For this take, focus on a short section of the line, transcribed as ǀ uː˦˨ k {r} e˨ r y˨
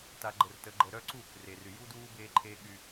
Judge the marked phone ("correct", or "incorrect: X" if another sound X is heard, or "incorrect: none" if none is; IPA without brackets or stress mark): correct